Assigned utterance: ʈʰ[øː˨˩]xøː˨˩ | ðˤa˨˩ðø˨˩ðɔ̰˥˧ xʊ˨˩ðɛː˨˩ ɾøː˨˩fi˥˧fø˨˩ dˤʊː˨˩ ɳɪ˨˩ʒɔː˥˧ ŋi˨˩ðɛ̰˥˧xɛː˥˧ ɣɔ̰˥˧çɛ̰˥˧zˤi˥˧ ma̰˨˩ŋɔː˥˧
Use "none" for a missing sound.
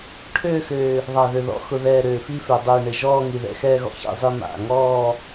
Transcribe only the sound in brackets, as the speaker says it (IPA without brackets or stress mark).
øː˥˧